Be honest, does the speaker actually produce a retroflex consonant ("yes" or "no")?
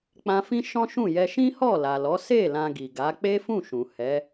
no